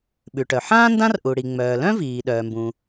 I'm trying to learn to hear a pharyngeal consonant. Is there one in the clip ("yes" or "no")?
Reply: yes